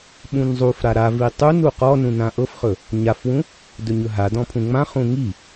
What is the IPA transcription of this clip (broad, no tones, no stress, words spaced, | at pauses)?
ɓũnzˤufɾa ɾa vitˤunu qɔnũ nãʔɤfχɵ | ɲafwũ | dɵɲɵɦadɔ̃ pʰũŋ͡mãχũ ŋi